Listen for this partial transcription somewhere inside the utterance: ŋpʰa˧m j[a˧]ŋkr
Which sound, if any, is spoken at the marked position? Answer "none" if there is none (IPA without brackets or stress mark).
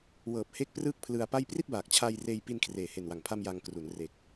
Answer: a˧